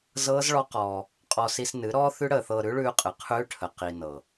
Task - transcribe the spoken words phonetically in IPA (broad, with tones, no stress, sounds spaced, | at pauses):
z ɤː˦ z ɭ ɔ˦ q ɔː˧ | qʼ ɔ˧ s i˧ s n ɨ˨˦ ɾ ɔː˦ θ ʉ˦ ɽ əː˧ θ ɤː˧ ɾ ʉ˦ ɭ ʉː˧ qʼ ɨ˨ qʰ ʉː˦ ʈʰ ə˨ q i˨ n ɤ˨